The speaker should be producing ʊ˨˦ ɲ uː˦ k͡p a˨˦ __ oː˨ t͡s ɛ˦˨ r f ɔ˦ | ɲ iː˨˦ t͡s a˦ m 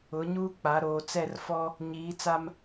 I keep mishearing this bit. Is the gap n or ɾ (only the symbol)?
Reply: ɾ